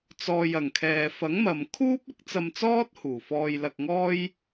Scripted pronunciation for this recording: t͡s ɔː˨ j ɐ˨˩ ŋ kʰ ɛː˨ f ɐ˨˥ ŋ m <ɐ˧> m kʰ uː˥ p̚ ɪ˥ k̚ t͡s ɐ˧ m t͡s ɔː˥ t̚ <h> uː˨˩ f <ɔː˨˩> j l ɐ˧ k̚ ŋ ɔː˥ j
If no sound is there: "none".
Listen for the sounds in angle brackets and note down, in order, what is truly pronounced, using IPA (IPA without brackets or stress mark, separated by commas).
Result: ɐ˨, h, ɔː˧